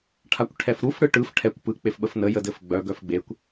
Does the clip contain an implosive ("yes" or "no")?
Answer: yes